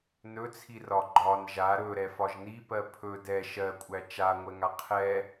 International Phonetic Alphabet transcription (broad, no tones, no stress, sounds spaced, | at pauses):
n ɵ t͡sʰ i r ɒ ɡ͡ǃ ɒ n ʒ a ɾ ɵ ɾ ɛ f ɒ ʒ n i p ɜ pʰ ɵ d ɛ ʃ ɜ kʷʼ æ t͡ʃ a ŋʷ ɛ ŋ a qʰ ɛ